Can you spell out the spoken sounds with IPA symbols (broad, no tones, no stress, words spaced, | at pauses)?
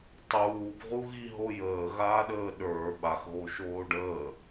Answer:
tˤuːbʁuɣi ɦojəːɣaːɗəː ɗə˞ ɓaxɣo ʃoːɖəː